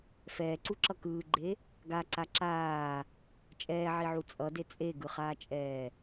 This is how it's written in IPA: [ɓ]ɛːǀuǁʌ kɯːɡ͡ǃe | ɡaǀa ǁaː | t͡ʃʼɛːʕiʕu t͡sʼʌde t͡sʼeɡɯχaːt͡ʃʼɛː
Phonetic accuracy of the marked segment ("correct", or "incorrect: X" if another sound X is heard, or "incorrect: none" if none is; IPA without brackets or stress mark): incorrect: f